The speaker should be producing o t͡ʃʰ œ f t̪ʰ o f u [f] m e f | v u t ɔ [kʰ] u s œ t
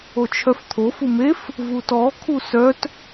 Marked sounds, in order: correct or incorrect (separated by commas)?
incorrect, correct